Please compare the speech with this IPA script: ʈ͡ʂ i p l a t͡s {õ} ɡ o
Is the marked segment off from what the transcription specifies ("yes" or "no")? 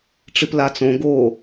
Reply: no